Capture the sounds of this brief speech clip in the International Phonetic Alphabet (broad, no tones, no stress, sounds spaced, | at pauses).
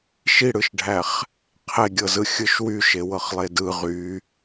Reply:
ʃ i ɽ ɯ ʃ ɖʱ æ χ | qʰ e ɡʲ ɤ z ɯ xʲ ɯ ʃ w y ʃ e w ɤ χ lˠ e d ɯ ʁ y